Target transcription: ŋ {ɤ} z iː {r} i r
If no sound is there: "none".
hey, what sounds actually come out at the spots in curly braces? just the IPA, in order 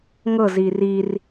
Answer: ɤ, r

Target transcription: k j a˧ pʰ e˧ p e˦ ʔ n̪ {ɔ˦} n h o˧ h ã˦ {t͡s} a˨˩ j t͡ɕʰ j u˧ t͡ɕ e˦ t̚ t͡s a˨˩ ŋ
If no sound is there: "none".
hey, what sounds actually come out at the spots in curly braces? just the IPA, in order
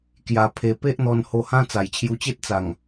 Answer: ɔ˧, t͡s

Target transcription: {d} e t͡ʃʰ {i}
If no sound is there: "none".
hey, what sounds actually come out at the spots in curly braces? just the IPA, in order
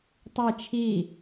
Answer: tˤ, i

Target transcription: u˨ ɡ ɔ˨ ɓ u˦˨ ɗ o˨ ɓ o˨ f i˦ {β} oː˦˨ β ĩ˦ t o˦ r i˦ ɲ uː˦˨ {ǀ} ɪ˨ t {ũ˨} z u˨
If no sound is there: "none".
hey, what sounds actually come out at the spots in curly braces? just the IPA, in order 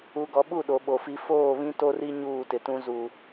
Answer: f, t, ũ˦

